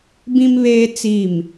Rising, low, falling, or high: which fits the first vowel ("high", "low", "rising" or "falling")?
high